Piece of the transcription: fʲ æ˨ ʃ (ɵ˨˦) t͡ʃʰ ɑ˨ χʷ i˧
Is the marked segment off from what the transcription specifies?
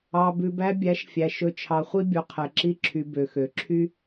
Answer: yes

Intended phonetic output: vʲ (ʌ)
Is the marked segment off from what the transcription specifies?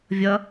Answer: no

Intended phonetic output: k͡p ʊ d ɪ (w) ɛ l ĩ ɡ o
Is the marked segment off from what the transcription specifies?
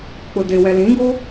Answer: no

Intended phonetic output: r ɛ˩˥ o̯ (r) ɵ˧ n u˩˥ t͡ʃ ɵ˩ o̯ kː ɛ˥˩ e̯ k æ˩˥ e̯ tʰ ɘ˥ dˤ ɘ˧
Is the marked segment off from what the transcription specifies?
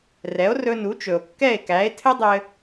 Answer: no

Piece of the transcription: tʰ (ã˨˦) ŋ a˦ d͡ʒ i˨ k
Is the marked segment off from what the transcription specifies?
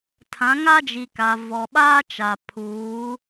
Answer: no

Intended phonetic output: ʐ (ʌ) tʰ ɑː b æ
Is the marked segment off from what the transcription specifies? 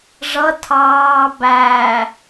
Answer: no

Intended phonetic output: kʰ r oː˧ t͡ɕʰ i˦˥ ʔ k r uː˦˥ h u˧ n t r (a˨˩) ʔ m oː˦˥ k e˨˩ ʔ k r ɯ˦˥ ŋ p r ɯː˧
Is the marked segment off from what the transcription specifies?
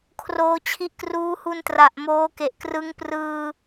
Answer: no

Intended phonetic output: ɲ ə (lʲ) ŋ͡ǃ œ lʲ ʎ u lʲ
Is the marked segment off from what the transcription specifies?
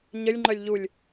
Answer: no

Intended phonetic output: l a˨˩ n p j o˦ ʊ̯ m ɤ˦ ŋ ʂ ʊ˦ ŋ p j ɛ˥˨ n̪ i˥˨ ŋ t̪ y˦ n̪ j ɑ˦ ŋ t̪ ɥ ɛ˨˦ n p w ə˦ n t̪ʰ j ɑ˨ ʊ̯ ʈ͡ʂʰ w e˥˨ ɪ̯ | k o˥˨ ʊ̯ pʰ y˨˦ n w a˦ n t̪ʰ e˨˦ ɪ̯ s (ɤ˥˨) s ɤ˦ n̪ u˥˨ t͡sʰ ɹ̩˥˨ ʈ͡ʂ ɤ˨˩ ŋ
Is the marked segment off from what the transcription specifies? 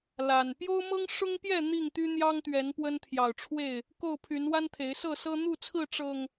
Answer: no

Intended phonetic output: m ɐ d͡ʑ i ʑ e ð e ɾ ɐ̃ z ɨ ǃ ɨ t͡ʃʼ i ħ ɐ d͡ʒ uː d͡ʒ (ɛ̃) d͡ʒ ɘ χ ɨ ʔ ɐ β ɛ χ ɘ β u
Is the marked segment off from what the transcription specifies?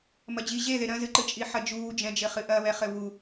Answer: no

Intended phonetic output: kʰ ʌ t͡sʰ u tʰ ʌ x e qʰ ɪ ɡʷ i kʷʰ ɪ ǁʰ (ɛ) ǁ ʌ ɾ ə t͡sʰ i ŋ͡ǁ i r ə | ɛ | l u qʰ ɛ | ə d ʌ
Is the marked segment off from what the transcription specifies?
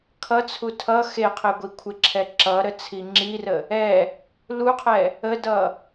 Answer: no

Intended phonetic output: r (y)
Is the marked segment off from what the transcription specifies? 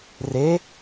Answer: yes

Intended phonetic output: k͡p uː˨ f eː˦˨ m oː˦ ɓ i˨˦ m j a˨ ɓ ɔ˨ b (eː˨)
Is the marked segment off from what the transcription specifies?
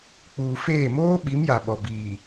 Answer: yes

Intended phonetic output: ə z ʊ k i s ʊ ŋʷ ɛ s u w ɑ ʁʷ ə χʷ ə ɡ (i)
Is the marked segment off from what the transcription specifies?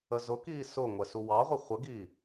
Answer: no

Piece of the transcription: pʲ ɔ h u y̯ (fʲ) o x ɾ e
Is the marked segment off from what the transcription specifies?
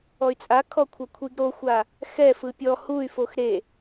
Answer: yes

